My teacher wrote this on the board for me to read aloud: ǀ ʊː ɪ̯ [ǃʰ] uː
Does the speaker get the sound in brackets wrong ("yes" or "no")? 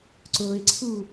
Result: yes